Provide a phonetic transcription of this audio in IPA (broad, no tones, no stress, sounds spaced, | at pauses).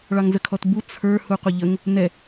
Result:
ɭ ɑ ŋ z ə kʰ ɔ t b u t͡sʰ ə˞ h u qʷ ə ʎ ə ŋ | n ɛ